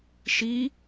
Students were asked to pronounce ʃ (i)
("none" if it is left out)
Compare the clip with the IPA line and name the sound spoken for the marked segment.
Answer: i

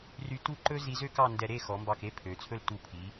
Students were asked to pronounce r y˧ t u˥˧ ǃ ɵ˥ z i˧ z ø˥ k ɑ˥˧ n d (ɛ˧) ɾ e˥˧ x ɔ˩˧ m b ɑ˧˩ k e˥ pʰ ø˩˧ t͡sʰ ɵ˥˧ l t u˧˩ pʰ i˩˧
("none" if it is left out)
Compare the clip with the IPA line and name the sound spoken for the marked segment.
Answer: ɛ˧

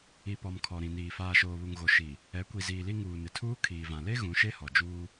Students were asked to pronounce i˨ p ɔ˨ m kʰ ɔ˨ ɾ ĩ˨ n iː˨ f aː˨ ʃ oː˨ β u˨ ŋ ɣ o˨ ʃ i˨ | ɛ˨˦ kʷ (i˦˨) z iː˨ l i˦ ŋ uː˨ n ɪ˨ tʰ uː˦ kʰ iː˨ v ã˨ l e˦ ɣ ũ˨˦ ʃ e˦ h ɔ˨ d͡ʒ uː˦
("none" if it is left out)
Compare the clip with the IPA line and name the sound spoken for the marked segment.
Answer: i˨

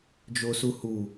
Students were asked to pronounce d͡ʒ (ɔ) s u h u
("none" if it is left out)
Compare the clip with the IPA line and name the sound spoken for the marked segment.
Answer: o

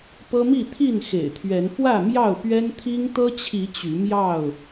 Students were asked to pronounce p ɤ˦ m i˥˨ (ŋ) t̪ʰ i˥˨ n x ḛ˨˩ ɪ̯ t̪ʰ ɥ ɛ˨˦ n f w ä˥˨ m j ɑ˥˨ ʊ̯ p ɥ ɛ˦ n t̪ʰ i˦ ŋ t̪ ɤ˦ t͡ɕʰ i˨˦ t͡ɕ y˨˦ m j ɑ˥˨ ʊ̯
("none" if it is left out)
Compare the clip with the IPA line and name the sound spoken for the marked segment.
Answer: none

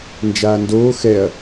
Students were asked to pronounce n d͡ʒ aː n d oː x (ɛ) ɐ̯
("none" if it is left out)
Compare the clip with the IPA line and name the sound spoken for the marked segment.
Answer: ɛ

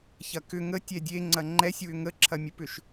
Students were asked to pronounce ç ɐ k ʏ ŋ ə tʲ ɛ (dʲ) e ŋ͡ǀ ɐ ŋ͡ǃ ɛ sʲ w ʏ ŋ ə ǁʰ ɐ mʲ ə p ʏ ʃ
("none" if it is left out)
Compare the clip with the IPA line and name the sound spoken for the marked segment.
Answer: dʲ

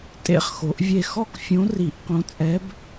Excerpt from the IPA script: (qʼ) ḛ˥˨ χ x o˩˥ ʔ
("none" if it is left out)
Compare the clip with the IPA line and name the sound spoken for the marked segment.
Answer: tʼ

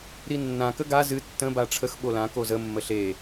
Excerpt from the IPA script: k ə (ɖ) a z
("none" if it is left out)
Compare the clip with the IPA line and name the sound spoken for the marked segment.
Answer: ɡ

